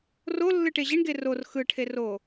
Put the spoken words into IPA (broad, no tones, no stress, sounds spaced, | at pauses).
r o lː ɯ ʈ e ʑ i ɳ ɡ e r o r x ɯ ʈʰ e r o